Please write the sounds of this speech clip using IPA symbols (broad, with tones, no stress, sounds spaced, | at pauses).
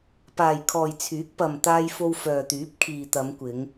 p aː˨ j kʰ ɔː˨ j t͡sʰ yː˨˥ k̚ p ɐ˨ m t̪ aː˧ j f o˧ w f œː˨ t̪ yː˨˥ p̚ kʰ iː˨ t̪ ɐ˨˧ m kʷ ɪ˨˧ ŋ